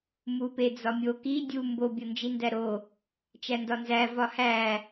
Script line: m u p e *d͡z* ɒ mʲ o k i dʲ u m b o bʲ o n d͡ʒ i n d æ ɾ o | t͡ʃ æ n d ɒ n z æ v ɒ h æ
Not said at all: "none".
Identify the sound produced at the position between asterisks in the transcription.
d͡z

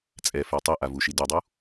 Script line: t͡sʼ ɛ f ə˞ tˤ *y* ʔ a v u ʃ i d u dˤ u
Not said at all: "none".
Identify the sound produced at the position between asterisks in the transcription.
e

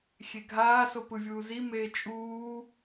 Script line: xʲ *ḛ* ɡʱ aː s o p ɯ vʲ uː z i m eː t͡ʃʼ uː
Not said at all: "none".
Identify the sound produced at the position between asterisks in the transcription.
e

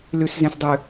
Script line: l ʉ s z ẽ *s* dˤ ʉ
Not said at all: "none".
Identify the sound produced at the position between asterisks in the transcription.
s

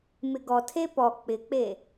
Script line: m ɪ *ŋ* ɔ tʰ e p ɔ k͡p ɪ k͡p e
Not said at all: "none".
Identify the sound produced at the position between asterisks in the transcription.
ɡ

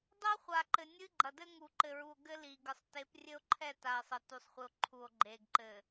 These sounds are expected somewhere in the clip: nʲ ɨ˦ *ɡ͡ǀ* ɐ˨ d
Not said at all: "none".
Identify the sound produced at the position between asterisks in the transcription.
ɡ͡ǃ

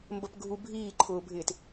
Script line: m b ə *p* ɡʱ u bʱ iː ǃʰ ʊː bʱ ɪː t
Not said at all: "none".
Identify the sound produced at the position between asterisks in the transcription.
p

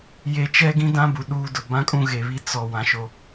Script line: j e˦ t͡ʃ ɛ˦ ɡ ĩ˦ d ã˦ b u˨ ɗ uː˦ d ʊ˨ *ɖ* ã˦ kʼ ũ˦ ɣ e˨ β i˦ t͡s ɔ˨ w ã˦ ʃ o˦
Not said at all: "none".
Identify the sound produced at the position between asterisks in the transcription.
b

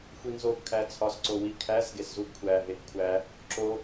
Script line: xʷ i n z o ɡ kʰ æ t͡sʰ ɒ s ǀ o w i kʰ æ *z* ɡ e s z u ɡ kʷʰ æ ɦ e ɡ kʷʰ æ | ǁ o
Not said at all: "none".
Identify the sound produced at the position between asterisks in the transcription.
z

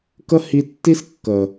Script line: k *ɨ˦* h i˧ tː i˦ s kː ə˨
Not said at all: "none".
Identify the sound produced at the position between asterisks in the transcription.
ə˦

